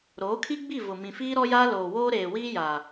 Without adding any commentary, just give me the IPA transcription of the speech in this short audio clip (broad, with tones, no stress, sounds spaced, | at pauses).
ɾ oː˨˦ kʰ i˦ ɡ͡b i˦˨ v ʊ˨ m ĩ˨ f iː˦ ɾ ɔ˦ j aː˦ l oː˨ w oː˦ ɾ eː˨ w iː˦ j a˨